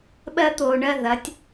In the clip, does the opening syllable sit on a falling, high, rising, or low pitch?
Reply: high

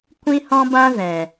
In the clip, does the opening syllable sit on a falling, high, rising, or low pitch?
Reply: high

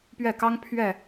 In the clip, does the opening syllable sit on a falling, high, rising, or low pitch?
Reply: falling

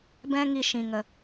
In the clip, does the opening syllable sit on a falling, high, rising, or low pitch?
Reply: high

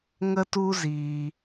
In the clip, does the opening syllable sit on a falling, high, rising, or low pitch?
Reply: high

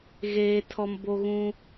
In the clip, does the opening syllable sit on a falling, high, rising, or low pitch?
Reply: high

